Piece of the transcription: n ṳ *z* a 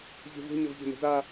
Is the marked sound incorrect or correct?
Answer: correct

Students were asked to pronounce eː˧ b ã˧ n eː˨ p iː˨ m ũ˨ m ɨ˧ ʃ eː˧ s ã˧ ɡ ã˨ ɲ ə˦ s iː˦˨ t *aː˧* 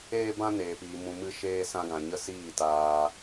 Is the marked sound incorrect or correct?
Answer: correct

